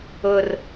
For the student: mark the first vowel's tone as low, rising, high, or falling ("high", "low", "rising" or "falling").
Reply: low